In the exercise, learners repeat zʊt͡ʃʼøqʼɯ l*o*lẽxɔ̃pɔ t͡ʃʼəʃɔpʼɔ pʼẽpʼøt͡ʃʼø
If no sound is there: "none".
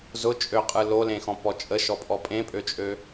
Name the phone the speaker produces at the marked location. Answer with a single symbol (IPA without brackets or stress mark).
o